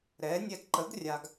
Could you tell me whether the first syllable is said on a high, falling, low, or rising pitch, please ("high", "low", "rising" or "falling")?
rising